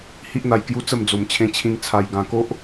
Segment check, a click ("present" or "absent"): absent